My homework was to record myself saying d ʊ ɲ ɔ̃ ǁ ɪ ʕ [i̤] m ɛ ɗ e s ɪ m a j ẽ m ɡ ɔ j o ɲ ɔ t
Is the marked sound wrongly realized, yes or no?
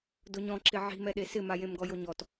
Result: no